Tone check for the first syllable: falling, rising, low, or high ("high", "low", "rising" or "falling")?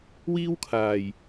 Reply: high